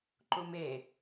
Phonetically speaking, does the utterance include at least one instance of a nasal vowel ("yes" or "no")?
no